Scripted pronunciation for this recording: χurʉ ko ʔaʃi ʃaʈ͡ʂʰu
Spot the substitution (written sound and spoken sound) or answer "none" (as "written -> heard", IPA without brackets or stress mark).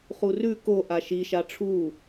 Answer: none